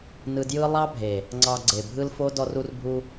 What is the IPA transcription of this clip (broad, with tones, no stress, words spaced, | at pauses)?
nɯ˧djɯ˦ lˠɑ˦bʱe˨ | ŋ͡ǀɑ˧ɡ͡ǀe˨bʱɯ˦lfo˦ dɔ˧ru˧rbʱu˧